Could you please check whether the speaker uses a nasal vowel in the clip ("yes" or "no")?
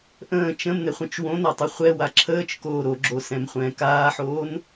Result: yes